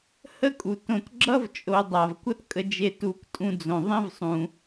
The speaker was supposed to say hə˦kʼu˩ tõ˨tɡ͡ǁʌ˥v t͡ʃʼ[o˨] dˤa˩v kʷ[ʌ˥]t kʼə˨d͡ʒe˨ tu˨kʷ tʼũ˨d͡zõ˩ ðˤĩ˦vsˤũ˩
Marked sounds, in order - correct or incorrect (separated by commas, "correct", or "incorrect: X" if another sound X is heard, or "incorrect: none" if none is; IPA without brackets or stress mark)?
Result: correct, incorrect: ʌ˦